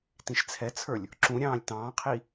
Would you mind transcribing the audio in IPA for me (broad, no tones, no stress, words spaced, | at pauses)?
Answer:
tĩʃt͡sʰɛt͡sʰə˞lʲ | ǁũɾʲɑ̃ːlʲ tɑ̃ːqʰi